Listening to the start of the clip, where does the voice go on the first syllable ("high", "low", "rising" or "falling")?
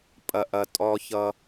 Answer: low